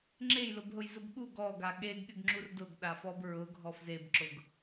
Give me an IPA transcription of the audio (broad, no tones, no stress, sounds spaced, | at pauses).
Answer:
ŋ͡ǁ e j l ʊ b ɦ ʊ j z ʊ b ɠ u ɡ ɔ ɡ a ɠ e ɡ ɠ ɪ ɡ ŋ͡ǁ u r d ʊ ɡ ɗ a f ɔ b ɹ ʊ ɡʱ ɔ f z e b ǁ ʊ ɡ